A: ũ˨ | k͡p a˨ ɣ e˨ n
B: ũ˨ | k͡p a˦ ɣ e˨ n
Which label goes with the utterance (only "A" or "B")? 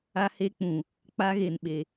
B